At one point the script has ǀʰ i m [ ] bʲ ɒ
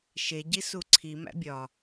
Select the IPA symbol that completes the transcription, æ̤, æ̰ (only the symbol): æ̰